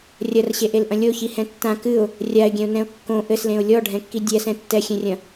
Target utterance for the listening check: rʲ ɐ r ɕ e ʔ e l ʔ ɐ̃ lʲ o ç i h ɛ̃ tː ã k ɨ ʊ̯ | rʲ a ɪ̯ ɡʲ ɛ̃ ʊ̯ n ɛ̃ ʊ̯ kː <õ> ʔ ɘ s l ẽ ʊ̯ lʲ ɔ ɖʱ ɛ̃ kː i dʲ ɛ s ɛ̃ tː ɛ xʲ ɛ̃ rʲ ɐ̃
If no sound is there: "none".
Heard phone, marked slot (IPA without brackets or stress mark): õ